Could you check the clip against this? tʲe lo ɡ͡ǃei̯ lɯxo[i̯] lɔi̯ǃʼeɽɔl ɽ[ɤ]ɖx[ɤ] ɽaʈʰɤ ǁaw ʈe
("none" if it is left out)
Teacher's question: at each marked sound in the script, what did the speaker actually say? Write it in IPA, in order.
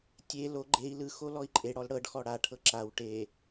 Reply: none, ɤ, ɔ

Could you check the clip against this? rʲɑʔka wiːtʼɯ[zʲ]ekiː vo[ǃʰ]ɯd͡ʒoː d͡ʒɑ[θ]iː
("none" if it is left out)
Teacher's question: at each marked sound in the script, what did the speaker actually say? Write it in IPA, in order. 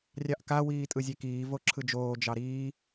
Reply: zʲ, ǁʰ, ɾ

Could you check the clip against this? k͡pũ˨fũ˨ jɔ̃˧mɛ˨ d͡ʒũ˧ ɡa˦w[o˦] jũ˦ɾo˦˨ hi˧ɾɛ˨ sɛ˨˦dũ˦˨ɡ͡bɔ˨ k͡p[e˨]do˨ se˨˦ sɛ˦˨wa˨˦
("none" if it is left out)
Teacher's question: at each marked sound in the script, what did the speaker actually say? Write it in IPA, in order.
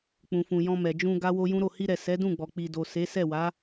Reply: o˦, i˨

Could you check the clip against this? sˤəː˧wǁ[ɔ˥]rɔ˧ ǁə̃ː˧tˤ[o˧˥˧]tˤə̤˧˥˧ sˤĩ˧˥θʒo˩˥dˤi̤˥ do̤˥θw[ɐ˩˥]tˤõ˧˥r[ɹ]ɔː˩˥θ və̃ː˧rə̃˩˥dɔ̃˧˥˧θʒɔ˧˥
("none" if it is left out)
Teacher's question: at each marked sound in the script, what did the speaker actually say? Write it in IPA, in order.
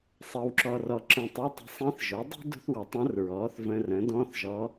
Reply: ɔ˧, o˧˥˧, ɐ˩˥, ɹ

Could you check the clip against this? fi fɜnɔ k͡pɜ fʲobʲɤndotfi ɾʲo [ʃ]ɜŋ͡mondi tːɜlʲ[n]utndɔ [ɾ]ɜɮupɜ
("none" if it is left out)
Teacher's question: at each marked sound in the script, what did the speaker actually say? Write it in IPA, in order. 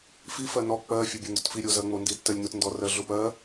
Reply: z, n, r

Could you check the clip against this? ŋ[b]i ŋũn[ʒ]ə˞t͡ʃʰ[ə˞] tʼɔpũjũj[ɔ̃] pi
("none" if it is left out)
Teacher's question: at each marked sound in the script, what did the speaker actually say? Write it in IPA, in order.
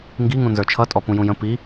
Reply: ɡ, z, ʌ, ə̃

